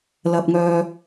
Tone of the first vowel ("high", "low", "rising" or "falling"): high